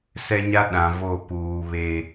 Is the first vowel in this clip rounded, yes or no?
no